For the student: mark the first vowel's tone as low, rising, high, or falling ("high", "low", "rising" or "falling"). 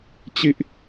falling